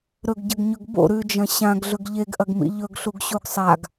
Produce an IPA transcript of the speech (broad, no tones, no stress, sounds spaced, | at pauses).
ɾ ɵ ɡ ɟ ɐ ɡ ɲ ɵ ɡ b o̰ ɾ ʉ d͡ʒ ɐ̃ ɕ ã ɡ ɮ ɵ ɡ ʎ e ɡ ʔ ɐ ɡ m ḭ ʎ ɵ ɡ ɬ u ɡ ɕ u ɡ sˤ a ɡ